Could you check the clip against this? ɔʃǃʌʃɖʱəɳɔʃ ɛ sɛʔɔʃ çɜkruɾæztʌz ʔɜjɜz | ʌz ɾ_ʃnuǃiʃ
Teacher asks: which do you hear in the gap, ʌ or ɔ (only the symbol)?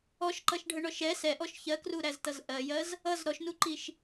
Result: ɔ